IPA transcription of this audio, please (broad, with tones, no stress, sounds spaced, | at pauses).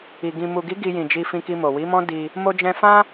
i˨ ɡ ĩ˨ m u˨ ɡ i˨˦ ɡ i˧ j ĩ˨ d͡ʒ i˧ f ĩ˧ k i˧ m o˨ w i˨˦ m ɔ̃˦ d i˧ | m o˧ d͡ʒ ɛ̃˧ f ã˦